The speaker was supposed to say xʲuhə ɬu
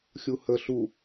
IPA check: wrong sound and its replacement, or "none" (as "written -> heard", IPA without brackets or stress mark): none